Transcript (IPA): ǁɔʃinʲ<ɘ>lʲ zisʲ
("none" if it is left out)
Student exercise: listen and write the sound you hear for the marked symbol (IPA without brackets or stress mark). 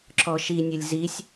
ɘ